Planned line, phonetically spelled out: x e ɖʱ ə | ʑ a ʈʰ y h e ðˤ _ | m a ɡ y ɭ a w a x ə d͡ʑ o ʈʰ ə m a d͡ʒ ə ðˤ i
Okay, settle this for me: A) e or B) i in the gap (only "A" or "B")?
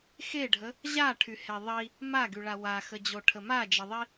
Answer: B